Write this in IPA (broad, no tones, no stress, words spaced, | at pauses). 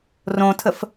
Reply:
rõtʰəf